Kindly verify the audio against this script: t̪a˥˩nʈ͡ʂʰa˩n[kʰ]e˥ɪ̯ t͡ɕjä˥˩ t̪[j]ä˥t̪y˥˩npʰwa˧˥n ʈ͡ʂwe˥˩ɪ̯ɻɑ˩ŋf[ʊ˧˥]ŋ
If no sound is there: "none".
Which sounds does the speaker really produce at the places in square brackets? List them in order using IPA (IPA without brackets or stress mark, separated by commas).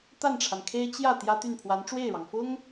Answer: kʰ, j, ʊ˥